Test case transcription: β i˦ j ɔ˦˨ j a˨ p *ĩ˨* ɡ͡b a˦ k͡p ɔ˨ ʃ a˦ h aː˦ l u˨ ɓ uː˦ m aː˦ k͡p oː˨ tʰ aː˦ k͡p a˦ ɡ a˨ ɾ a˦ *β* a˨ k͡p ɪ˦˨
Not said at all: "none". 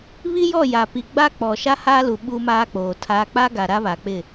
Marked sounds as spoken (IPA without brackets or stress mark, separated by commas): i˨, β